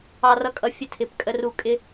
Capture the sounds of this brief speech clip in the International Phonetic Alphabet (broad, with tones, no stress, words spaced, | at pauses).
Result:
ɑ˦rʌ˦kʼʌ˦ fʲə˦tʰɪ˨˦p kʼə˦ ru˦ kʼɪ˦